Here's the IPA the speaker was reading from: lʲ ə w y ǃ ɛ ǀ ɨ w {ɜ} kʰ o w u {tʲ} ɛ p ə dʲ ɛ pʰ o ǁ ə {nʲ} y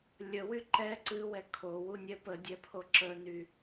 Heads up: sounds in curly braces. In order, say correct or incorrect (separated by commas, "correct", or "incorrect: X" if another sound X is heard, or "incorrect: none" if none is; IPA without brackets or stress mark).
incorrect: ɛ, incorrect: nʲ, incorrect: n